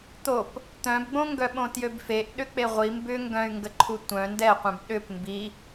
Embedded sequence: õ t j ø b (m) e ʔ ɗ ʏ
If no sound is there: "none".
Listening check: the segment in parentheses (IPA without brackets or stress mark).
f